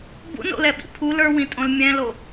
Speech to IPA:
b ṵ n o̰ l ɛ ɓ ḭ pʰ u l ə˞ w ĩ tʼ õ l mʲ ɛ̃ l o

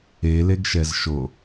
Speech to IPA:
e l e ɡ ʃ ɛ z ʃ o

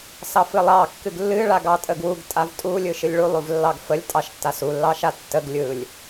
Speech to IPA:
s ɑ f ɨ lˠ ɑ kː ɨ ɡ lː ɨ ɭ a ɡ ɑ tʼ ə ɡ w u ɡ tʼ a v tʼ u lʲ ɯ ʃ ɨ lʲ ɭ u lˠ u v lː ɑ ɡ f ə lʲ tʼ ɑ ʃ tː a s u lː ɑ ʃ a tː ə ɡ lʲ ɯ lʲ

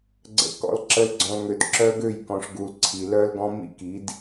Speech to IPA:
ɡ͡ǀ ə̰˨ k ɔ̰˨ l ǁ ə˨ l ɡ͡ǀ ɔ̃˨ l ŋ ø˨ d ǁ œ˦ ɡ ø˦˨ j k ɔ̃˨ ʂ ɡ u˨ l ǀʰ i˨ l œ˦ l ɡ ɔ̃˦ m ḭ˦ k i˨˦ d

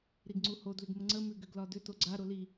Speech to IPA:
ɾ i ɡ ŋ͡ǀ u h o d l ʏ ɡ m ə ŋ͡ǀ ə m ʉ ɡ ʏ ɡ l ɒ d ʏ t o ɡ͡ǀ a ɾ o l i

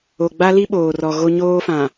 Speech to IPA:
o˨ ɡ͡b a˦ l i˦ ɓ oː˨ r ɔ˨ ɣ o˦ ɲ oː˦ f ã˨

